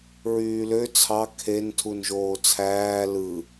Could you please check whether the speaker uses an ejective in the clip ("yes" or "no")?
no